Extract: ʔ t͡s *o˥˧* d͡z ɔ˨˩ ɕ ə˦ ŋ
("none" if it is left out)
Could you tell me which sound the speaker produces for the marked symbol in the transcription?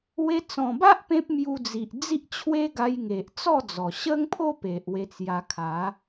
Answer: ɔ˥˧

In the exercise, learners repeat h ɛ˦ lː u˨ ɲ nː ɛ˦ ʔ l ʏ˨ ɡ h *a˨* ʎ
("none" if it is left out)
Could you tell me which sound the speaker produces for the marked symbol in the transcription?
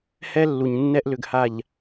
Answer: a˨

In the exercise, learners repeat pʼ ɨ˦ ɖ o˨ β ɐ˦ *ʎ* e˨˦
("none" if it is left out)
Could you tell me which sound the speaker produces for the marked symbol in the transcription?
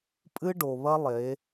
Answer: lˠ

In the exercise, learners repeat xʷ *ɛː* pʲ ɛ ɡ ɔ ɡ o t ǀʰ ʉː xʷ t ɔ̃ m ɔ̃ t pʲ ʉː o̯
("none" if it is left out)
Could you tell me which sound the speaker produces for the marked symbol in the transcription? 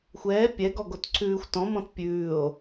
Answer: ɛː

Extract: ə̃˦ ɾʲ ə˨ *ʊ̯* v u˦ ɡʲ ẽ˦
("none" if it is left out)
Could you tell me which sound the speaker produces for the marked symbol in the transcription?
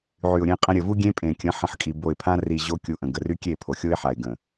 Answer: none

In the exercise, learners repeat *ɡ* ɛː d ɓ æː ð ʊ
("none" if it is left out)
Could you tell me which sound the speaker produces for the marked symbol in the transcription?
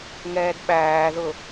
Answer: ŋ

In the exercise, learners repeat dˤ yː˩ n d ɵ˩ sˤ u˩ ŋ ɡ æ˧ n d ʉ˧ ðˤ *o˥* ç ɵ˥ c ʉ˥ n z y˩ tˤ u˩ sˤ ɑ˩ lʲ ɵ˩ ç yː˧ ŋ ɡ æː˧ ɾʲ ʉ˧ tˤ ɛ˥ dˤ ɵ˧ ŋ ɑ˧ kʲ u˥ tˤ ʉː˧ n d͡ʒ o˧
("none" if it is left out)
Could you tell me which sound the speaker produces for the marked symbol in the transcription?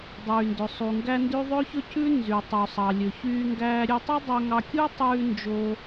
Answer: ɵ˥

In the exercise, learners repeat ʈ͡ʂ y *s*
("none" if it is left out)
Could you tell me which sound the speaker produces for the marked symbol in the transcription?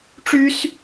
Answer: s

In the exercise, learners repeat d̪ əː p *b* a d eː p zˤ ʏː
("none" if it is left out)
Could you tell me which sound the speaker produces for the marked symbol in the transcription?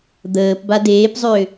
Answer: b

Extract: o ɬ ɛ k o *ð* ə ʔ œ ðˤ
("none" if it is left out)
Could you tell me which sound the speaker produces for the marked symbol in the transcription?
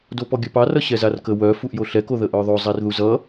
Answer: ð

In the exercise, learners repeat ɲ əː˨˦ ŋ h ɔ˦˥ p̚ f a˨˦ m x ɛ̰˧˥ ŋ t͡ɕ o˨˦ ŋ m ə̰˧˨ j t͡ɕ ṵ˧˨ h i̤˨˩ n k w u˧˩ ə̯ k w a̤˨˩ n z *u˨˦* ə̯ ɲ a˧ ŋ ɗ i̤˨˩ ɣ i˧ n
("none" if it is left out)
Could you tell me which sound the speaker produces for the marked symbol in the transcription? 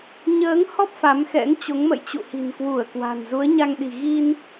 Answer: u˨˦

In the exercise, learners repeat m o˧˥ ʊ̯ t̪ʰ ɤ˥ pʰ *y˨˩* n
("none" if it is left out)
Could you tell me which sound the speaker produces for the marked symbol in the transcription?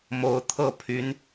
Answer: y˧˥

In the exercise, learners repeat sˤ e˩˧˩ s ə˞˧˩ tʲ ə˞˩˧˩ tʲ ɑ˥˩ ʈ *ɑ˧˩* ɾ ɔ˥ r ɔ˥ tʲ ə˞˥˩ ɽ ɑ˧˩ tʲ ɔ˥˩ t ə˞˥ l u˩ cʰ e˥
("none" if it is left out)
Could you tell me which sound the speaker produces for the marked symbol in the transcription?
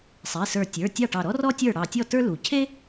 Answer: ɑ˧˩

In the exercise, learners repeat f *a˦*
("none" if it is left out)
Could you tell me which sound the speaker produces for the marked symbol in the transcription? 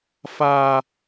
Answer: a˦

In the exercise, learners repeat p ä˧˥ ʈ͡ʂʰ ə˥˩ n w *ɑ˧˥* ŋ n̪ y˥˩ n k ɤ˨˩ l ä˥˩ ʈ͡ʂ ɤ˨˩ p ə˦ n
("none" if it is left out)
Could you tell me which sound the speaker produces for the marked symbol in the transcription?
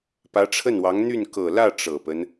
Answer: ɑ˧˥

